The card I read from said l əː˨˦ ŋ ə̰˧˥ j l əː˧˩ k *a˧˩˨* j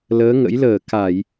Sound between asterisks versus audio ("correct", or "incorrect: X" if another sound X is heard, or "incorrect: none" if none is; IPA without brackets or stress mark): correct